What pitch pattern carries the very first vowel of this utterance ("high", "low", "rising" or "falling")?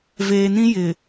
low